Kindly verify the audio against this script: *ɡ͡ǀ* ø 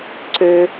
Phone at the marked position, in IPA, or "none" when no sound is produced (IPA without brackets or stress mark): ǀ